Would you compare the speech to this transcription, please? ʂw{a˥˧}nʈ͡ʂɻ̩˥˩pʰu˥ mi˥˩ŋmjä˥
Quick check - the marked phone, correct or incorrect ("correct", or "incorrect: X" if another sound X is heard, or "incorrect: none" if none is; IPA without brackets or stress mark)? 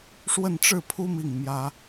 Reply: incorrect: ə˥˧